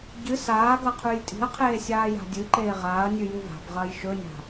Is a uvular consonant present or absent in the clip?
present